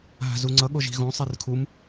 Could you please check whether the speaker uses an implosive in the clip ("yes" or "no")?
yes